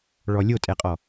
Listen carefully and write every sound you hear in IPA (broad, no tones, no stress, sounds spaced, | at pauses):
ɭ ɔ lʲ o tʼ ɛ qʼ ɔ